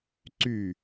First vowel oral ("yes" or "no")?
yes